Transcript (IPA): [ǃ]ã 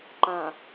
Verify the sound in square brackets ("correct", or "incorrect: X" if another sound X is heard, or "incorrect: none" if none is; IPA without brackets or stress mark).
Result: correct